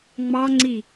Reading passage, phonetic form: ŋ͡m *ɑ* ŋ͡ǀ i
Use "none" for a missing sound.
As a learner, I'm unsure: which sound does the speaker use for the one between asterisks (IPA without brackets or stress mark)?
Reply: ɑ